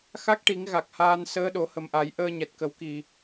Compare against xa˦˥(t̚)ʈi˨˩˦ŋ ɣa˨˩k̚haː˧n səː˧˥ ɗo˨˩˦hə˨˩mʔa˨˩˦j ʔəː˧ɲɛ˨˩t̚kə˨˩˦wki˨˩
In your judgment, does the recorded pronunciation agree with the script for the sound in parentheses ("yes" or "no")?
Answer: no